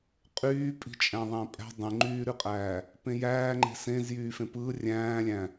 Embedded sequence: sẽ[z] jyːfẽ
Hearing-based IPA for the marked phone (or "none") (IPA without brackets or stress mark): z